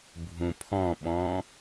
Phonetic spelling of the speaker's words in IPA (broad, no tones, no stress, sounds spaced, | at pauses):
bʱ ũ pʰ ɔ̃ ɓ ɔ̃